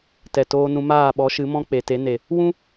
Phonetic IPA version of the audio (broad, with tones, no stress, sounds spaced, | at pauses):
t ɛ˨ t oː˧ n ũ˧ m aː˦˨ ɓ ɔ˨˦ ʃ ɨ˨˦ m ɔ̃˦ k͡p e˨ t e˨˦ n e˨ | w ũ˦